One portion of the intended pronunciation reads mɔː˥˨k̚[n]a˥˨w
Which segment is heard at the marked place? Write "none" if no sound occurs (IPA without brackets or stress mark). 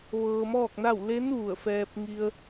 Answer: n